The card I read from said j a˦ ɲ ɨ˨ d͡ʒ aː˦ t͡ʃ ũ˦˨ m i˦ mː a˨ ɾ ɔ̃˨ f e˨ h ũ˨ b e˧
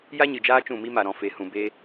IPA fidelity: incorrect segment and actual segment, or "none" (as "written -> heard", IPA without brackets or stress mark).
mː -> m